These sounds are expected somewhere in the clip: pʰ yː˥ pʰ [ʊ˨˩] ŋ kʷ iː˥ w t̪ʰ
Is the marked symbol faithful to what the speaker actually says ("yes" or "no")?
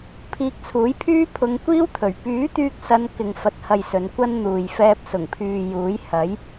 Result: no